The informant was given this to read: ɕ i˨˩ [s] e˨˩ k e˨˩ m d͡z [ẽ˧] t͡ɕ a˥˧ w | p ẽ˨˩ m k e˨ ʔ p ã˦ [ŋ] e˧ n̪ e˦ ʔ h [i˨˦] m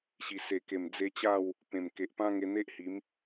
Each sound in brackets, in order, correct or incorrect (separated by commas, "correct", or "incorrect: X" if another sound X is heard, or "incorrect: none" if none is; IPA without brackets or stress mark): correct, incorrect: e˧, correct, correct